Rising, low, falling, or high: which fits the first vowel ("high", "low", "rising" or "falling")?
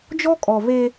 high